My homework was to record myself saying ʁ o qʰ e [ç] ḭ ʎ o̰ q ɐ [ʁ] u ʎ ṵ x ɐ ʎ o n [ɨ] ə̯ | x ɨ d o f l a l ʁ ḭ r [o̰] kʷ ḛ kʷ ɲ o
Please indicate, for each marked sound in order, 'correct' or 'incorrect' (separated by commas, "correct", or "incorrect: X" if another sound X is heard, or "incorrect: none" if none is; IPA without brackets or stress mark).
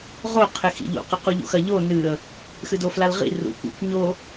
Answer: incorrect: x, incorrect: q, correct, incorrect: ṵ